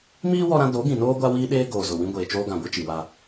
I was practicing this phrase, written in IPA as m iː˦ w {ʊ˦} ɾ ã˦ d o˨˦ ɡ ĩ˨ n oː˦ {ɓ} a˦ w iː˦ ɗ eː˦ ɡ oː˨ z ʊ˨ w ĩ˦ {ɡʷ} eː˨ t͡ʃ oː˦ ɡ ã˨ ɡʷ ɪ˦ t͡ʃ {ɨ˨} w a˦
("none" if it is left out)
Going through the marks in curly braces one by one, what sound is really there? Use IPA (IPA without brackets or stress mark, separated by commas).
ɔ˦, ɡʷ, ɡʷ, i˨